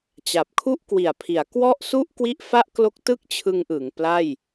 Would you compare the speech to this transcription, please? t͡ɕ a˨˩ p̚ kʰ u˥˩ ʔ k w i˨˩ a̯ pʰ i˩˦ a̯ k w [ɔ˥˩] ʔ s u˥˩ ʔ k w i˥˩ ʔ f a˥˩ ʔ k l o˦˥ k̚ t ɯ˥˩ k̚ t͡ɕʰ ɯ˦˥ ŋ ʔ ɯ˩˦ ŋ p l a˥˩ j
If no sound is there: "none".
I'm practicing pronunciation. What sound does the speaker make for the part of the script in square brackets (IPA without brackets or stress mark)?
ɔ˥˩